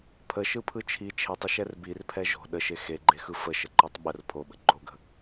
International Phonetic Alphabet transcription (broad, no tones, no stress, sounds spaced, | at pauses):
pʰ ə ʃ ɯ pʰ ɯ t͡ʃʰ i t͡ʃʰ e tˤ ə ʃ ɛ r b i r pʰ ɛ ʒ o̤ ɗ ə ʃ e x e ɡ͡ǃ e x ɯ f ə ʃ ə ǃ ɔ tˤ ɓ ə r pʰ o ɓ ə̤ ɡ͡ǃ o ɡ ə̤